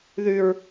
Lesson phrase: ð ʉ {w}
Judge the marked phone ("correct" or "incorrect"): incorrect